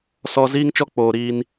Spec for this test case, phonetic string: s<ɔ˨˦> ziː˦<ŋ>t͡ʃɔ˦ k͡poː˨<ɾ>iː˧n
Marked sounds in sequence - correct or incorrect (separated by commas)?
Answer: incorrect, correct, correct